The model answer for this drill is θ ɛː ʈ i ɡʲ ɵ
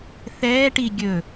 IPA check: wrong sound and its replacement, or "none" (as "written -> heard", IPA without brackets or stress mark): none